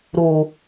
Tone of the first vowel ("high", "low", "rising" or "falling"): low